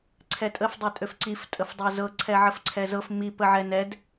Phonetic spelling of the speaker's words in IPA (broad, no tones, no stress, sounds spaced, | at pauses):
ǀʰ ɛ tʼ ə f dˤ ɛ tʼ ø f ǀ i f tʼ ə f dˤ ɤ z ɤ ǀʰ ɛ ʕ ə f ǀʰ ɛ z ɤ f m i p ə ʕ ɛ n ɛ d